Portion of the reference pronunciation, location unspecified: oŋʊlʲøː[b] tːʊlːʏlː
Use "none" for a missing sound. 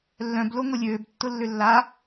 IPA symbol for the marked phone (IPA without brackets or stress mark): b